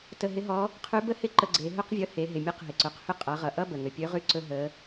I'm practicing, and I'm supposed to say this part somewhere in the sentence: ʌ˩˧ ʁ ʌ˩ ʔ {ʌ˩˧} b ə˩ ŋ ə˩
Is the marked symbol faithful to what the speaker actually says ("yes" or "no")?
no